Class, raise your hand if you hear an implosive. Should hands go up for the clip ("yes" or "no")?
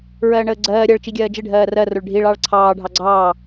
no